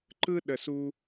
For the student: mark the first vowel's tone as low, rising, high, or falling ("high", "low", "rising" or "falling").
high